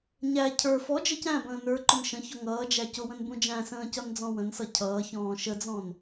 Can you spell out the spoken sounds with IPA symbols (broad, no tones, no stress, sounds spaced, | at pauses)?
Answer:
ɲ æ cʰ ə˞ f ɔ d͡ʒ ə c æ̃ b ə̃ː n ə˞ ǃ ʊ n ʃ ə̃ ç ɔ ŋ ʌː d͡ʒ æ c ʊ w ə̃ n b ũ d͡ʒ æ̃ s ə̃ː c ʌ n d͡z ɔ̃ w ə̃ n s ʌ cʰ ʌː ç ɔ̃ː ʃ ə d͡z ɔ̃ n